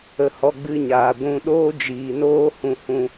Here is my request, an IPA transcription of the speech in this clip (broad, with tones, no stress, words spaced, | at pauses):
ə˦hɔ˦ ɡ͡bɨ˦ɲaː˧ ɡʷũ˧ɗoː˦ d͡ʒiː˧noː˦ hũ˧hũ˧